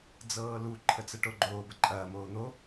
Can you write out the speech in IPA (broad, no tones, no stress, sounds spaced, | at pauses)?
d͡z ɤː l u ǃʰ ə t͡s ə ʈ o ɡ͡ǃ oː b ə ǃʼ ɐː m oː n̪ o